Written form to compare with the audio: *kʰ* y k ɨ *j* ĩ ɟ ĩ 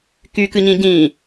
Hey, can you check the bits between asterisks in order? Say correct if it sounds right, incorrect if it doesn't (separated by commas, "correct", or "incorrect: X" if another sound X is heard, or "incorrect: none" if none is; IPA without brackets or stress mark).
incorrect: k, incorrect: ɲ